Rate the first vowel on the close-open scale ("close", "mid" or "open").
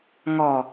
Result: mid